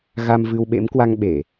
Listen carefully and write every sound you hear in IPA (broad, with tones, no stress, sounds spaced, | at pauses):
ɣ a˧ m v ɨ˧ w ɓ ḛ˧˥ m k w a˧ ŋ ɓ e˧˩˨